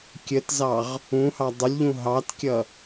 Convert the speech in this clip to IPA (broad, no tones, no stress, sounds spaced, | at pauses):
kʲ ə t z ɑ ʁ | ũ h ɑ dˤ ʊ lʲ ʎ ũ ɦ ɑ t kʲ ʌ